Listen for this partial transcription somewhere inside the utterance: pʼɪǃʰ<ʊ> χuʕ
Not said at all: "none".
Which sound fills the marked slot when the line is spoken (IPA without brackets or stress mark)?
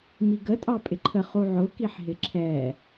ə